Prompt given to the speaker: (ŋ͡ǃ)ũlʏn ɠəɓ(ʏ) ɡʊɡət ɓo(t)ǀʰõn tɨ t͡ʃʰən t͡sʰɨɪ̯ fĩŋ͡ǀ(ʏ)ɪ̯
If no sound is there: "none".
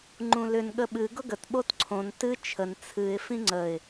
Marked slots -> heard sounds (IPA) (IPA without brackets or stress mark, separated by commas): ŋ͡ǃ, ɨ, t, ə